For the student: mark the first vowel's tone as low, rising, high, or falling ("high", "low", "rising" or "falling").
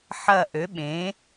falling